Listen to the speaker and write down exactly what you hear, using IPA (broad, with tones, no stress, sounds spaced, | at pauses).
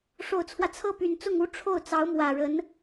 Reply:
ʂ o˨˩ ʊ̯ t͡sʰ w ä˦ t͡sʰ ɤ˥˩ p y˨˩ n t͡s ʊ˥˩ ŋ u˥ ʈ͡ʂʰ o˥˩ ʊ̯ t͡s ɑ˧˥ ʊ̯ m w ä˨˩ ɻ ə˧˥ n